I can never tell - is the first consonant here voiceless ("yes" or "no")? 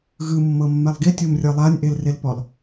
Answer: no